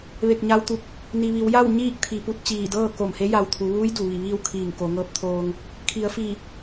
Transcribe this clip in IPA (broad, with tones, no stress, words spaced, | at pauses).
ʋe˧˩k̚ɲa˧wt̪u˧˩k̚ | ni˩ʋi˩˧wja˥˨w ɲiː˥˨k̚t̪ʰi˩˧pu˧˩t̚ t͡ɕiː˧˩ dɤː˥˨ko˧˩mhe˧˥ ja˧˩wt̪ʰu˩˧ʋuː˧˥j du˩ʋi˧˩ʋiː˥˨w kʰiː˧˩ŋ ko˩˧ŋɤː˧˥p̚t̪ʰoː˧ŋ | kʰi˩˧ə̯fi˧˩